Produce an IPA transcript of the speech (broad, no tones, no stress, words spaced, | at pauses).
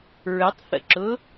ɹətˤθə̰ǁʊ